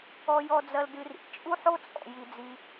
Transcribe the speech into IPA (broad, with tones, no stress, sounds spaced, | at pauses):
ɔ˧ j ɔ˧ d͡z ɐ˧ l d ɨ˧ r ḭ˧ t͡ʃʼ u˦ ħ o˦ t͡sʼ ɔ̰˨ j i˧ d͡z i˧